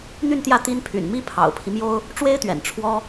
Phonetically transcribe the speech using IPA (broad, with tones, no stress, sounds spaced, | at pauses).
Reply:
n̪ y˥˧ n t̪ j ä˥˩ t̪ i˥ n pʰ y̰˨˩ n m i˥ pʰ ɑ̰˨˩ ʊ̯ pʰ i˦ m j o˥ ʊ̯ | ʈ͡ʂ w e˥ ɪ̯ t̪ ɥ ɛ̰˨˩ n ʈ͡ʂʰ w ɔ˥